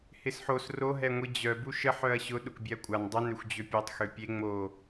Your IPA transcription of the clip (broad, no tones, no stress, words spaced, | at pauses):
hɪsħos ro ɦɛŋʷid͡ʑœ buʃə ħœɐ̯ɕʊ ɗʊkbʲɛɐ̯kʷʼan dˤʊ nøxʷd͡ʑøpʲetˤ xøpʲe ŋ͡mo